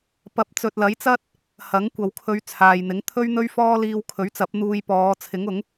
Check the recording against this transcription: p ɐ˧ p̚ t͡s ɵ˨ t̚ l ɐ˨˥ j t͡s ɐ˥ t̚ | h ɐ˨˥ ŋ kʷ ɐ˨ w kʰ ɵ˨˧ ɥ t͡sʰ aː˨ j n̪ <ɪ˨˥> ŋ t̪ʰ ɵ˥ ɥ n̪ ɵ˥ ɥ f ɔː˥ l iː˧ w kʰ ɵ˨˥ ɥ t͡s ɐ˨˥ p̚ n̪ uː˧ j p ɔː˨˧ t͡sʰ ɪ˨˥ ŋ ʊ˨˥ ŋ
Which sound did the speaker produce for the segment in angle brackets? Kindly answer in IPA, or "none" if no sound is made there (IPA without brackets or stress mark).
ɪ˨˥